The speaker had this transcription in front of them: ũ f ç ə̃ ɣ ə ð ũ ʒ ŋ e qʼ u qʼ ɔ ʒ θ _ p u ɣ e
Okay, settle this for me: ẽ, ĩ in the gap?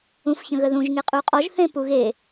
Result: ẽ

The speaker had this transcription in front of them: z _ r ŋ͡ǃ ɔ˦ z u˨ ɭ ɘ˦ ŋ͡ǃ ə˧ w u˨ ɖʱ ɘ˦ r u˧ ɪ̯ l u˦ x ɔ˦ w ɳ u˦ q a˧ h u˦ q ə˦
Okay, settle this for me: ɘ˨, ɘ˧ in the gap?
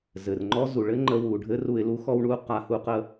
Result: ɘ˨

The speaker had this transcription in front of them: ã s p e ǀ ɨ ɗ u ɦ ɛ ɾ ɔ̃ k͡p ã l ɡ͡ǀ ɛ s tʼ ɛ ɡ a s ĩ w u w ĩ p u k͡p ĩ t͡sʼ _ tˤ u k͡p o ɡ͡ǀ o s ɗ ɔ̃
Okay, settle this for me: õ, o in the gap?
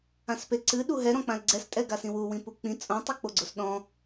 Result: õ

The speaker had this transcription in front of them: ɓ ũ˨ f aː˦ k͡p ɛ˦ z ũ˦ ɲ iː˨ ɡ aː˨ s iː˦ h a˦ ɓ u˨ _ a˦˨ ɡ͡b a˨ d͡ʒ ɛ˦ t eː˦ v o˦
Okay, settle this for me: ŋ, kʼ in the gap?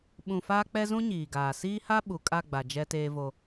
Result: kʼ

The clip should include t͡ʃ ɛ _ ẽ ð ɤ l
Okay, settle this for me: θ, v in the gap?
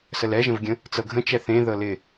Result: θ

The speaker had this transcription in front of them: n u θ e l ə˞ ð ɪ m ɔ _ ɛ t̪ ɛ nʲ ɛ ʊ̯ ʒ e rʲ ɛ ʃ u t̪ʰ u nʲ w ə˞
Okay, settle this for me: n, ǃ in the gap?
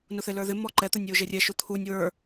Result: ǃ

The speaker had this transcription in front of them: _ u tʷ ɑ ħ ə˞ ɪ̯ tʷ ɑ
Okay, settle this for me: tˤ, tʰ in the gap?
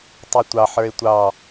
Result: tˤ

